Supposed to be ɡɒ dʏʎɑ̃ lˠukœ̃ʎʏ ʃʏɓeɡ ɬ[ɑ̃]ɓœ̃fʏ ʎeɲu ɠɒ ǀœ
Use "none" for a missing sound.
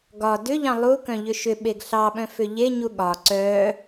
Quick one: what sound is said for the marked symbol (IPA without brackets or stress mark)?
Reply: ɑ